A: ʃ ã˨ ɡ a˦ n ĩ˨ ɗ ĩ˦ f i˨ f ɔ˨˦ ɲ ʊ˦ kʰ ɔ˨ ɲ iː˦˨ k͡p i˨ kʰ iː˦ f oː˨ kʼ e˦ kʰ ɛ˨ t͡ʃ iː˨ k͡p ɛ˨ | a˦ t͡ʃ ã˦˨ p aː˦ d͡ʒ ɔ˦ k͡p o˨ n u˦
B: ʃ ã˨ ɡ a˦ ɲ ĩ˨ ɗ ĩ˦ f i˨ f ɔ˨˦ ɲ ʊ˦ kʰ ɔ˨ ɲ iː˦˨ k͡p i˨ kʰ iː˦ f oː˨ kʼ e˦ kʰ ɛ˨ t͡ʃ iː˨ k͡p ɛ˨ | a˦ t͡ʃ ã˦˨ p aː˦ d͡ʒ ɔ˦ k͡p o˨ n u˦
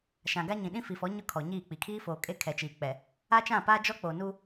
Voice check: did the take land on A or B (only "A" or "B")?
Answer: B